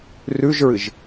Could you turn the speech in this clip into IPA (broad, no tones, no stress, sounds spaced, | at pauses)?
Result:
r ʉ ʒ ɹ ɨ ʒ